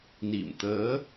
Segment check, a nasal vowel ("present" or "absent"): absent